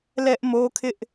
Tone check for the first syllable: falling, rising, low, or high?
high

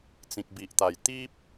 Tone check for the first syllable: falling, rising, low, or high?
low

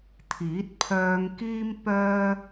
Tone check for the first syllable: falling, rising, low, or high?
rising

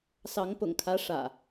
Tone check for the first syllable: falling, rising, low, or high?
rising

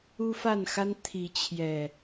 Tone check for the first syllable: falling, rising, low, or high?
high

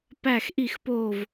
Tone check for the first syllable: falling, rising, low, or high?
falling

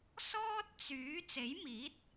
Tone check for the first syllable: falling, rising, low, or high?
high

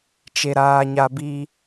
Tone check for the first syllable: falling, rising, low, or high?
low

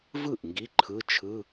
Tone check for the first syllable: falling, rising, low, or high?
falling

